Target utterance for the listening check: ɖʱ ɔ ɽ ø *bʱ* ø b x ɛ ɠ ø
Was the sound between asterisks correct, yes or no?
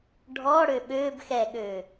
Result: no